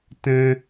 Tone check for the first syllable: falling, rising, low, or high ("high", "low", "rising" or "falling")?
high